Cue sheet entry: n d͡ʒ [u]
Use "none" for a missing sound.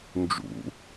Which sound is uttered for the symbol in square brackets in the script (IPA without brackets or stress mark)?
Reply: ṵ